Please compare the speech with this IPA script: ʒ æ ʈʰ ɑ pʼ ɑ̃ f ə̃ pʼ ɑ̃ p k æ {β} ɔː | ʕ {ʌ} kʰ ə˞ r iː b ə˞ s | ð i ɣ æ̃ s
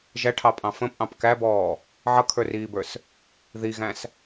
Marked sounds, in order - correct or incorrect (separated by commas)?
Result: incorrect, correct